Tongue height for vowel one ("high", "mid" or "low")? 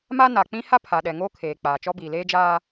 low